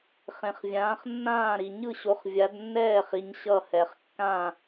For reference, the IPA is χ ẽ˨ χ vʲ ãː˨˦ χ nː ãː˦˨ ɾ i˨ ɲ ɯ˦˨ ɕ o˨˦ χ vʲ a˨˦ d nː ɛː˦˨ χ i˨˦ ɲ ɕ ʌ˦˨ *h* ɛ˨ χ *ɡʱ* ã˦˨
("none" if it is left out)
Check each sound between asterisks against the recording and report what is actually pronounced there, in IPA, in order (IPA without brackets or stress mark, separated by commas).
h, kː